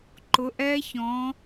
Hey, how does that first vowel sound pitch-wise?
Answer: rising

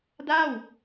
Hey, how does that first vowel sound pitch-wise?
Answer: falling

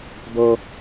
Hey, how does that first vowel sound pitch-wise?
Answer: high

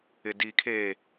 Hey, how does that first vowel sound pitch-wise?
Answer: low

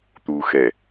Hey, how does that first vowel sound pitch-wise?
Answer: low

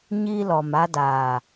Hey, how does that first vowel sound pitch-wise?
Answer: high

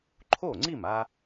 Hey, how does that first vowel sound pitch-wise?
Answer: falling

